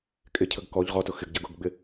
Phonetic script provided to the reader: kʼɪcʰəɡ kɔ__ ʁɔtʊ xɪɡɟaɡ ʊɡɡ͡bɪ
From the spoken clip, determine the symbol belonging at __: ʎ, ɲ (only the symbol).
ʎ